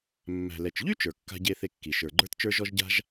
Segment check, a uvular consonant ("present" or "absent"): absent